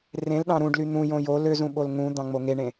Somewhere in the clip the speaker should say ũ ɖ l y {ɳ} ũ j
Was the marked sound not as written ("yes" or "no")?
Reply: yes